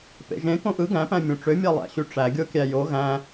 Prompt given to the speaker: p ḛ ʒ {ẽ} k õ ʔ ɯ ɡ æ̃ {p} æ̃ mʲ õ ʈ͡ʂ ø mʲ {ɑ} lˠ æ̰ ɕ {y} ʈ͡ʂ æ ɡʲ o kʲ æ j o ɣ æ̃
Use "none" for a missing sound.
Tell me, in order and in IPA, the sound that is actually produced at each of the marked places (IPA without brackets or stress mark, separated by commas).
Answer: ẽ, p, ɑ, y